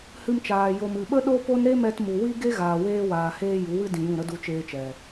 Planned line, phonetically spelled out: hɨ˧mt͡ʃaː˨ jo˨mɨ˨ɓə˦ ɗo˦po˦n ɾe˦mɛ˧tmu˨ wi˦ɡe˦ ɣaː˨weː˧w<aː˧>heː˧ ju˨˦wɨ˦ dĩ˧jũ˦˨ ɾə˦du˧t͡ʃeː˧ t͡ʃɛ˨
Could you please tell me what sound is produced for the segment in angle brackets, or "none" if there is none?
aː˨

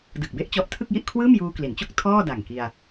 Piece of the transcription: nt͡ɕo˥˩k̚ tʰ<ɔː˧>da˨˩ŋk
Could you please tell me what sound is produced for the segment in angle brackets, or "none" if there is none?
ɔː˥˩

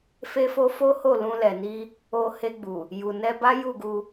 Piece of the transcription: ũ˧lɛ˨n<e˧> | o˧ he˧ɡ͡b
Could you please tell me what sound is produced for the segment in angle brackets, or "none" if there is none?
i˧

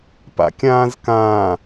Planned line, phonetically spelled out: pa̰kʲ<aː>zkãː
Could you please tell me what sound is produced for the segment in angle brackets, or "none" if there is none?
ãː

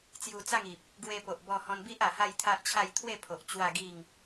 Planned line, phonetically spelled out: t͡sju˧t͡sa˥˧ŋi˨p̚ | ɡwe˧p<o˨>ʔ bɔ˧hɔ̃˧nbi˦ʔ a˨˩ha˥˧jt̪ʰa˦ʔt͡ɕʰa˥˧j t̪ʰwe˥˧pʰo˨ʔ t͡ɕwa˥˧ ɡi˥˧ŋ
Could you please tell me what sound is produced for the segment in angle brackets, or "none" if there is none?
o˨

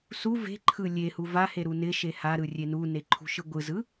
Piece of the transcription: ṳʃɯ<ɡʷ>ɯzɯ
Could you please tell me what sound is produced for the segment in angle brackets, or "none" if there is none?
ɡʷ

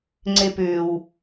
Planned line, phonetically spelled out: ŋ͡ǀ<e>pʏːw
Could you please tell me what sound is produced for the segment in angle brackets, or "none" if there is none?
e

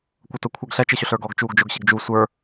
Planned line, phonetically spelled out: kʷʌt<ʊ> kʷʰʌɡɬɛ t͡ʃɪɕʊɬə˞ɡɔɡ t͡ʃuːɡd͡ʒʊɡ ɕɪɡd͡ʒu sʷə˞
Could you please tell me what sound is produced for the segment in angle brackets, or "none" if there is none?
ʊ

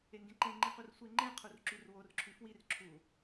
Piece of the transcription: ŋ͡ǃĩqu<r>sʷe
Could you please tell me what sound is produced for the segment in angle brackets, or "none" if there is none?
r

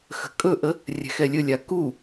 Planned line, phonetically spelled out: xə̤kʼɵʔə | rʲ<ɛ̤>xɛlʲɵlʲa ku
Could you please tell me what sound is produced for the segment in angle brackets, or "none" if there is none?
ɛ̤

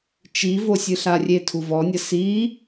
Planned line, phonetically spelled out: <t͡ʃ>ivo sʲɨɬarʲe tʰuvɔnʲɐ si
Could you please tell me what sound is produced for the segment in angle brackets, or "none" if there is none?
t͡ʃ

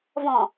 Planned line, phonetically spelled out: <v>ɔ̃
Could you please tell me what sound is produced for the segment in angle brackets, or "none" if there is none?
v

